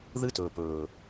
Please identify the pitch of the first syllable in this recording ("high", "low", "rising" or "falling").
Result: high